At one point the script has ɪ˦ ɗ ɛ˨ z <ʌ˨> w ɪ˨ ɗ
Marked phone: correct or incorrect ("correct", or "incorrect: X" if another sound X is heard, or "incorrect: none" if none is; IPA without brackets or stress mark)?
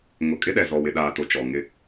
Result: incorrect: ɔ˨